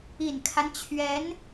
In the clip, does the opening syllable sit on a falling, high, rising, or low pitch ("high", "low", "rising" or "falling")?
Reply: low